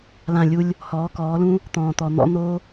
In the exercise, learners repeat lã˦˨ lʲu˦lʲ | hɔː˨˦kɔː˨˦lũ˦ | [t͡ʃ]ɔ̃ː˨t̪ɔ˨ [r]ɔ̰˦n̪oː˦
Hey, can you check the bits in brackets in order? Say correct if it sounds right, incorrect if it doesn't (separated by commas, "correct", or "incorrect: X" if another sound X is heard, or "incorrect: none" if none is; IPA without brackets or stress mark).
incorrect: t̪, incorrect: n̪